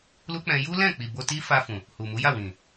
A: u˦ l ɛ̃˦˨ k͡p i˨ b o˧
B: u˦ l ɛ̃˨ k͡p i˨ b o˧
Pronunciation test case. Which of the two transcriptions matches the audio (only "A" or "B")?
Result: A